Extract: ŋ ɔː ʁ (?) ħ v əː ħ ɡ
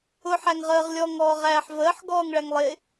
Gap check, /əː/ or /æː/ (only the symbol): æː